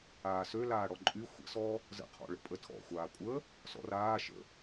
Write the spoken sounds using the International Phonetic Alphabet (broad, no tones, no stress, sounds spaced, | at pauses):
aː s ø l aː ɽ ɔ ǃʼ y xʷ ə̰ s ɔː | z ə̰ qʰ ɔ̰ ɭ ə̰ pʼ ə tʰ ɔ̰ xʷ aː kʷʼ əː | s ɔ̰ r aː ʃ ə̰